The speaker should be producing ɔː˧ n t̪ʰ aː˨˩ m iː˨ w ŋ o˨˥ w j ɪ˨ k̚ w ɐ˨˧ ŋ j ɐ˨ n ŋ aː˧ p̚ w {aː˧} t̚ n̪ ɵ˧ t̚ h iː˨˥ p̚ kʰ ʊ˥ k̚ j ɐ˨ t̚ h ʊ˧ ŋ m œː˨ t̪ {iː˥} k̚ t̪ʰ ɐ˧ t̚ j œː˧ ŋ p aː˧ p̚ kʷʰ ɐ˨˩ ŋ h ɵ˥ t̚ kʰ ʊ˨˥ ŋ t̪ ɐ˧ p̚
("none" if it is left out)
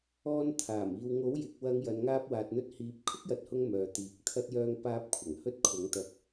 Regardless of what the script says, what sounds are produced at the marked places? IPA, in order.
aː˨, iː˨˥

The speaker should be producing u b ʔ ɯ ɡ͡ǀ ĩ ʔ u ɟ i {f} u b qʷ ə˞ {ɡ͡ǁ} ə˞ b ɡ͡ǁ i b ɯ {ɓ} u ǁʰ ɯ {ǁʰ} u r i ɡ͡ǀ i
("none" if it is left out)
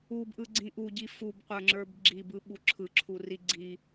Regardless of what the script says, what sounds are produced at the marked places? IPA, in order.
f, ŋ͡ǁ, ɓ, ǁʰ

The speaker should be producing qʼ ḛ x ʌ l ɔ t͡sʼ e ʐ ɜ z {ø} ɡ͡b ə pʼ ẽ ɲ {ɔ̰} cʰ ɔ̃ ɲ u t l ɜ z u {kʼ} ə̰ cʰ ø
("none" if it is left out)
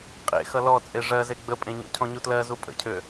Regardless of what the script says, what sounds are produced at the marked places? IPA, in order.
e, ɔ̰, pʼ

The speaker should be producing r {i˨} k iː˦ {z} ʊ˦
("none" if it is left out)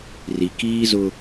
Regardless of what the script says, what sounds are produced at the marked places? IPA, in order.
i˨, z

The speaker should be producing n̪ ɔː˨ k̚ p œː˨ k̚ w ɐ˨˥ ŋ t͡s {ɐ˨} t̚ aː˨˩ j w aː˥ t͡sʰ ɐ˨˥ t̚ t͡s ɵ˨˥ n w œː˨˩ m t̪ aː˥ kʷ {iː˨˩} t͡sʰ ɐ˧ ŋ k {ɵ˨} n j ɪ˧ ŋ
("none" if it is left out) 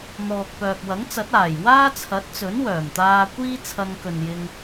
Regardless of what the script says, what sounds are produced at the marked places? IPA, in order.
ɐ˨˥, iː˥, ɵ˨

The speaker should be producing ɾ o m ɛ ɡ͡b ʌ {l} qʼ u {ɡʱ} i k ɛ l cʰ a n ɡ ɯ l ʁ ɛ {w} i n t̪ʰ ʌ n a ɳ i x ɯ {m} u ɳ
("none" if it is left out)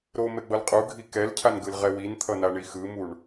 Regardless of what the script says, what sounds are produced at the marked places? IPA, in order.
l, ɡʱ, w, m

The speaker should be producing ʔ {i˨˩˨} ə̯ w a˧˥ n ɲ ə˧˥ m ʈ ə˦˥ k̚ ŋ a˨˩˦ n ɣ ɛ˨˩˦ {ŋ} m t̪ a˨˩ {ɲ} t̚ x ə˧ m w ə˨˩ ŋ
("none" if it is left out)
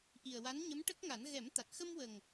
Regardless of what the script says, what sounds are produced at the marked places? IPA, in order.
i˨˩, none, none

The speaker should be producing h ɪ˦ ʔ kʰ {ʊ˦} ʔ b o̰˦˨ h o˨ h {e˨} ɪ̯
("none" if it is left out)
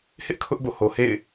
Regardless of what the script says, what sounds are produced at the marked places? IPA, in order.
ʊ˦, ḛ˦˨

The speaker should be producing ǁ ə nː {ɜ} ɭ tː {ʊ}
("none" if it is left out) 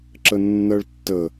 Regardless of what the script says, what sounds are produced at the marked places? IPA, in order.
ɜ, ə

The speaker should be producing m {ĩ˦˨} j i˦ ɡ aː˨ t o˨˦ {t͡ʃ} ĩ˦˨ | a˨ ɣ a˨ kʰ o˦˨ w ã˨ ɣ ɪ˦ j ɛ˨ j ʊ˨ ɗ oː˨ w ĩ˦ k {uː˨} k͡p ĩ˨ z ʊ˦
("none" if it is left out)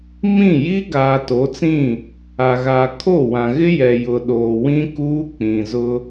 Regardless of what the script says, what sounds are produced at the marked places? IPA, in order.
ĩ˦˨, t͡s, uː˦

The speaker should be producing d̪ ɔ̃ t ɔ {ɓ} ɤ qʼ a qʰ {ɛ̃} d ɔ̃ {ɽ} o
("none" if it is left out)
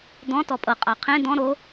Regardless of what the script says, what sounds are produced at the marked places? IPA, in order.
pʼ, ẽ, ɾ

